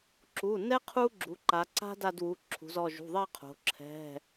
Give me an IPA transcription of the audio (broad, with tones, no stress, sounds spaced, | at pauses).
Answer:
ǁ u˩˧˩ n ɛ˦ qʰ u˦ ɡ͡ǁ u˩˧ ǃ a˩˧ ǀ a̤˦ d a˦˨ d w u˩˧˩ ǁʰ ṳ˩˧ z ɔ˩˧˩ ʒ ṳ˩˧˩ ðˤ ɛ˦˨ qʰ o̤˩˧ ǁʰ ɛ̤˩˧˩